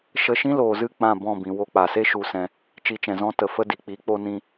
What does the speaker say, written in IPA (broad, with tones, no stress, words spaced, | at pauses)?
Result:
ʃə˧ʃĩ˦loː˨zɨ˦˨ k͡pã˦˨bɔ̃˦˨ bĩ˨wo˧ k͡pa˨se˦ ʃu˧sɛ̃˧ | t͡ʃi˧t͡ʃɛ̃˨zɔ̃˦ tə˨fə˦ di˨ k͡pi˨˦ k͡po˦nĩ˦